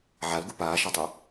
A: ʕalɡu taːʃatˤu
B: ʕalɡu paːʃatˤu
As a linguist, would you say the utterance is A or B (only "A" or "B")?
B